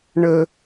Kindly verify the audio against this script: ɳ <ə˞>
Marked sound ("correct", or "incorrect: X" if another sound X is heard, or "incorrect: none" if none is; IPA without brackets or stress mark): incorrect: ə